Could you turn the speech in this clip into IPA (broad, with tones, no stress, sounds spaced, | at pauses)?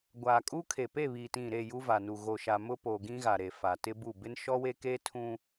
ɡʷ aː˨ kʼ uː˦ kʰ e˨ p e˦˨ β iː˨ t ĩ˦˨ ɾ e˦˨ j u˦ v a˨ n uː˨ ɣ o˨ ʃ a˨ m ʊ˦ p o˨ ɡ ĩ˦ ɣ a˨ ɾ e˨ f a˨ t ɪ˦ b u˦˨ b ɪ˦ n ʃ ɔ˦ w e˦ k eː˦ tʰ ũ˦